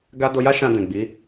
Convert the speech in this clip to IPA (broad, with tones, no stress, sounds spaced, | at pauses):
ɡ a˦ d o˧ j a˦ ʃ ã˧ d ɛ̃˨ ɡ͡b i˨˦